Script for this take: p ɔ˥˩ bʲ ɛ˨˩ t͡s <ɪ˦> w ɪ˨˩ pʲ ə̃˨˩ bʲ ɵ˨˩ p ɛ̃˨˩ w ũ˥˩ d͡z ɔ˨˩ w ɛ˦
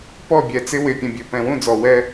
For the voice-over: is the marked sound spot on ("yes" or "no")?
yes